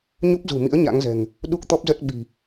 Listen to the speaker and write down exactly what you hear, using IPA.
ɲ u˦˥ p̚ z ṳ˨˩ m ḭ˧˥ ə̯ ɲ a̰˧˥ ŋ z ɛ̤˨˩ ŋ | ɗ u˦˥ k̚ t̪ ɔ˦˥ p̚ z ə˦˥ t̚ ɓ i̤˨˩

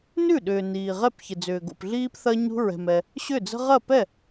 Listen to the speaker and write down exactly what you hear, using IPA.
n ʉ˥˩ ɗ ʏː˨ n iː˨ ʁ ɛ˥˩ p ç ɪ˨ d͡z ʏː˨ ɡ o̰˨ p ɮ iː˦ p θ ɐ˦ ɲ ṳ˦ ɹ ɛ̤˨ m ɛ˨ | ɕ ʏ˥˩ d͡z ə̤˦ ʁ ɐ˥˩ p ɛ˥˩

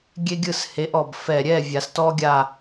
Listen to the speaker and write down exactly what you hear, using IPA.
ɡʲ e˦ ɡʲ ɯ˦˨ s h e˨˦ ʔ ɔ˨˩ b f ɛ˨˩ ɾʲ ɛ˦˨ vʲ a˨˩˦ s t ɔ˦ ɡʲ a˦˨

